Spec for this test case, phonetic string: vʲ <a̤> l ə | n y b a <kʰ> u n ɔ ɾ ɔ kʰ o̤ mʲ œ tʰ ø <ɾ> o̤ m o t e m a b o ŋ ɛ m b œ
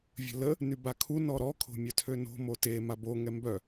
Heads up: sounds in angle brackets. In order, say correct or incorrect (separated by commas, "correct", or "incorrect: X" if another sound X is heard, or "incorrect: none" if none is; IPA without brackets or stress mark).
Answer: incorrect: ə̤, correct, incorrect: n